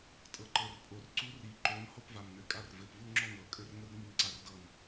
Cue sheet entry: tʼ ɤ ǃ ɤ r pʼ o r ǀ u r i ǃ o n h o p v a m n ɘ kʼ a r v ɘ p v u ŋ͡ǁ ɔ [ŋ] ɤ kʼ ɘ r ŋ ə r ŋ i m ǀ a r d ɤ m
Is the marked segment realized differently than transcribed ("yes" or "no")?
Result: no